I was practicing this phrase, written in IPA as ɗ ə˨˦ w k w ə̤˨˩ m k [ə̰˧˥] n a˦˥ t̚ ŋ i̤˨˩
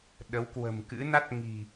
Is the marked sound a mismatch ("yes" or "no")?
yes